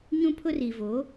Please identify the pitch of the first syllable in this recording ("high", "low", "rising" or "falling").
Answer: high